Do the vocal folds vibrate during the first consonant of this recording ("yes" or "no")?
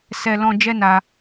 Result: no